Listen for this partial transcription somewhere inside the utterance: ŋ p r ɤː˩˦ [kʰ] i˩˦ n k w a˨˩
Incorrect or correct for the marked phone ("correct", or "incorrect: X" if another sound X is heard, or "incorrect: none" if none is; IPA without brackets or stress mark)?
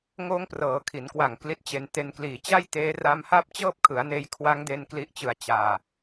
correct